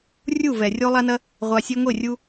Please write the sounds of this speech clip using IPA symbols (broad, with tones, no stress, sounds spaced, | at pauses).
rʲ u˦˨ v ɛ˨ rʲ o˦ lˠ a˦ n ɐ˦ | ʁʷ a˧ sʲ e˦ ŋʷ e˦˨ rʲ u˧